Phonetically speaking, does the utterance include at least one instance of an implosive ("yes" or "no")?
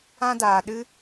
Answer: yes